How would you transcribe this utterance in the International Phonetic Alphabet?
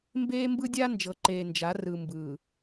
m b eː˦ m b ɯ˦ dʲ a˦ n d͡ʒ ɤ˨ ǃ eː˨ n d͡ʒ a˨˦ r ɯ˨ m b ɯː˨

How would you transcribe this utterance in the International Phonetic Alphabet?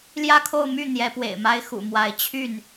l j ä˥˧ kʰ o˥˧ ʊ̯ m y˥˩ n̪ j ɛ˧˥ p w ḛ˨˩ ɪ̯ m a˥ ɪ̯ x ṵ˨˩ m w a˧˥ ɪ̯ t͡ɕʰ y˥˩ n

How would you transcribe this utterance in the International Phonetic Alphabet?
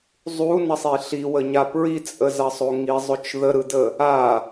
zˤ u n ɐ sˤ i ɬ i w ə ɲ a p ɹ i t͡sʼ ə z ɐ sˤ o ŋ i zˤ ʊ t͡ʃ ð ə ɾ ɯ d ə | a

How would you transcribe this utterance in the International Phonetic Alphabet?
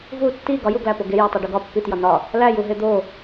v u tː i ɡ ɒ j u ɡ l æ p o ɡ e j ɒ tˤ u ɖ u ɡ ɒ pː i t j ɒ n ɒ | l æ j u ɦ e d̪ o

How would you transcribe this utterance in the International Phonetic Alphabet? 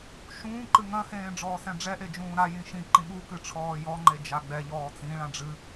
ʃ ũː ǃ ɨ ŋ ɐ̃ h ẽː ɖ͡ʐ ɔː s ɛ̃ ɖ͡ʐ ɛ ʔ e d͡ʒ ũː ɾ a j ĩ ʃ ĩ ǃ ĩ ɓ u k ɨ ʈ͡ʂʰ ɔː j ɔ ŋ͡ǃ e d͡ʒ a ɡ͡b ɛ ʎ ɔː t͡s ĩ ɭ ã ɖ͡ʐ ɨ

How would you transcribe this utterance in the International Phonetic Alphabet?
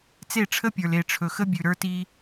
t͡s e˦˨ ʈ͡ʂʰ ə˦ pʲ ə˞˨ l e˨ ʈ͡ʂʰ ɵ˨ x ə˦ bʲ ʉ˨ ɾ ə˞˦ t i˦

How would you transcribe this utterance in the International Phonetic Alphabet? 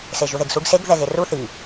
s e ʒ u ð e ɡ s u ɡ s e ɡ ð ɛ ɣ e r u θ i

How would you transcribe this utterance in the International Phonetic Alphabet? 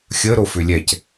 xʲ ə ɾ o f ʏ lʲ ɛ c

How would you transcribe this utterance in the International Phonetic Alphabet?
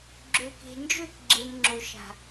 ɡ͡ǁ ø˨ k e̤˨ n d͡ʒ ø˦˨ k ɡ͡ǁ e˨ m ŋ͡ǁ o˨ ʃ a̤˨

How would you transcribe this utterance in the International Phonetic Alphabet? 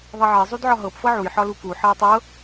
ðˤ e ʕ e zˤ u d ʕ ɒ ɦ ɤ p f ɤ ʕ u j ħ ɒ l u k u ħ ɜ j tˤ ɤ

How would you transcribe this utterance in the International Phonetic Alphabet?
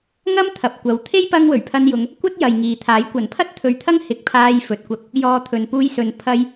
ŋ ɐ˥ m t̪ʰ ɐ˨ p̚ kʷ ɐ˨˥ w t̪ʰ e˥ j p ɐ˧ ŋ w ɵ˨˩ ɥ pʰ ɐ˧ n j ʊ˨˧ ŋ | kʷ ɐ˥ t̚ j ɐ˨ j ŋ iː˨ t̪ʰ aː˨˥ j kʷ ɐ˨˩ n pʰ ɐ˥ t̚ t̪ʰ ɵ˨˧ ɥ t̪ʰ ɐ˥ ŋ h ɪ˨˥ k̚ pʰ aː˧ j f ɵ˨ t̚ kʷ ɐ˧ k̚ | j ɔː˨˧ t̪ʰ ɵ˨ n p uː˧ j s ɵ˨˧ n pʰ ɐ˧ j

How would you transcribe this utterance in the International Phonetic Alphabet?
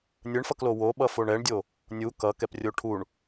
nʲ ɯ ɳ f ʌ k l o w o ɓ ʌ f o ɳ ɛ ɳ dʲ o | nʲ u k ʌ k ɛ p rʲ o ʈʰ u ɳ

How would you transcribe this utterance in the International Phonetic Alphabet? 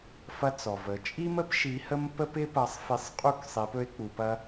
f ɐ˧ t͡s ɔ˩ v ə˩˧ t͡ʃʼ i˥ m ə˥ p ʃ i˧˥ h ə˥ m p ə˥ p ɪ˥ p ɐ˧˥ sˤ f i˧˥ sˤ qʼ u˥ k sˤ i˧˥ p ɵ˥ e̯ k͡p u˧ p ɐ˥

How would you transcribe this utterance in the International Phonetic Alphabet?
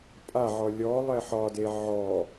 pʼ a ʕ ɔ lʲ ɔ lˠ ɛ ħ ɒ d e ʕ ɔ

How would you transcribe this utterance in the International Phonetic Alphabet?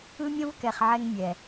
ɯ˦ mʲ õ˦ v k ɛ˨ χ ʕ ɛ˧ ŋ mʲ ɛ˨

